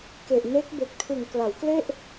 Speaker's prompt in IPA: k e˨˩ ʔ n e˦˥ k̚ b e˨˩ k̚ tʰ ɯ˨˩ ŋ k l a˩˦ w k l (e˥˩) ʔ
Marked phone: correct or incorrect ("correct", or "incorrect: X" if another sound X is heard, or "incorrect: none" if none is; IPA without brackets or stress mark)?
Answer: correct